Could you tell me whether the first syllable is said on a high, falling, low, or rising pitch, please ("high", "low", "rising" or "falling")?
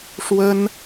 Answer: high